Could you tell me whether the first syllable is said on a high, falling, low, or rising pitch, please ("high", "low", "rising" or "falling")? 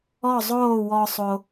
falling